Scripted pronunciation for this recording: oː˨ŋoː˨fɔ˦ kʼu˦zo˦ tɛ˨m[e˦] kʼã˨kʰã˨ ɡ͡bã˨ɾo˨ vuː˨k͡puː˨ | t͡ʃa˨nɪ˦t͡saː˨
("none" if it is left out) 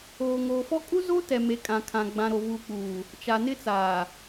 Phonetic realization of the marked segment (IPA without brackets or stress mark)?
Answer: e˨